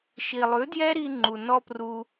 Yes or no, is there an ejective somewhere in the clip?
no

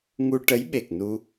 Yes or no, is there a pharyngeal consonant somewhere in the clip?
no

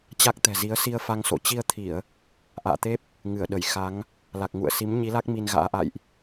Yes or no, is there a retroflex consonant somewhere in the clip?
no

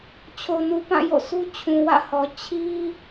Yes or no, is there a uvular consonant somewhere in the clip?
no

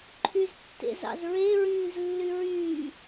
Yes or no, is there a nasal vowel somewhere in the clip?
yes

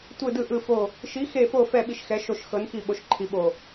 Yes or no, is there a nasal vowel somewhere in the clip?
no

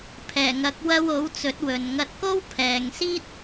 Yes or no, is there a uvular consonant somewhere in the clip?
no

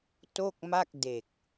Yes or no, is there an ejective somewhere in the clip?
no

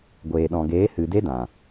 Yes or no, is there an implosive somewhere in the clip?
yes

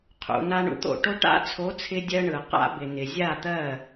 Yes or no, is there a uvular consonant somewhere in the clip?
yes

